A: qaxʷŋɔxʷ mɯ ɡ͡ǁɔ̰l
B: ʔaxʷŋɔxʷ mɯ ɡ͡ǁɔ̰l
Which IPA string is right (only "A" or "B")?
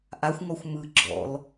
B